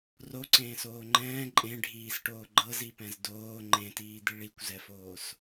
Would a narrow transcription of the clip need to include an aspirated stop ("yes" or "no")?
no